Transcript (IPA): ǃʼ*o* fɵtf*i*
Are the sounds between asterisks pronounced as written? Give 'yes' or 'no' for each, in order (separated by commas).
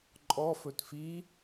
no, yes